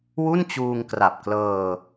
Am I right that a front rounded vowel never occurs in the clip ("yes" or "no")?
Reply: yes